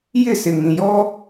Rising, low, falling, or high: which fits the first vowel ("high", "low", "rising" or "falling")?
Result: falling